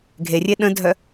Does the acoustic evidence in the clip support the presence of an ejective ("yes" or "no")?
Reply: no